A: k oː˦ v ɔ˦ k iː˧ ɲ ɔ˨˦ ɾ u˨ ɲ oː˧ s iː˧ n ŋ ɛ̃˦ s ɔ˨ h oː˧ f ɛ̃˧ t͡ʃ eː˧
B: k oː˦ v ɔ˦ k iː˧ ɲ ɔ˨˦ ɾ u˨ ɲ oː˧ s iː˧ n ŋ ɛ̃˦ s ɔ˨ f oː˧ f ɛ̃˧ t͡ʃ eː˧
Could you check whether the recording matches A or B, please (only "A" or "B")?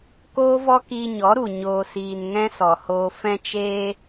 A